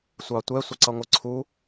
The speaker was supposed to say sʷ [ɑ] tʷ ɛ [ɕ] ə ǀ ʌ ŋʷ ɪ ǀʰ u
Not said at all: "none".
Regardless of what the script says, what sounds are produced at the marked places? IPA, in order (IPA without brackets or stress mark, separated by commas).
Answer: ɑ, sʷ